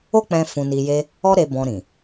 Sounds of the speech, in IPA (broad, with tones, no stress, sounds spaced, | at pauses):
o˦ k͡p ɛ̃˧ f ũ˧ n i˧ j e˦ | ɔ˦ ɾ e˧ b ɔ̃˧ ɾ ĩ˨